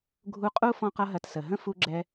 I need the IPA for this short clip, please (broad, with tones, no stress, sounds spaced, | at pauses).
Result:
ɡʱ u˧ qʼ u˦ f ɔ̃˦ q ʌ˦ ɦ ɐ˧ t s ə˨ ɦ ə̃˦ f u˧ ɡ͡ǁ ɛ˧